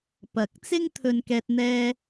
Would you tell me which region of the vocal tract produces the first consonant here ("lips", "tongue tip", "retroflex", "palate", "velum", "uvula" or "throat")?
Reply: lips